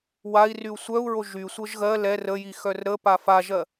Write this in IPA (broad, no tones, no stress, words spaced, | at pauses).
wai̯ ryu̯sʷœu̯ɹo ʒysʷɤʒ ɣɜ lɛr əji xœrɾəpa faʒɜ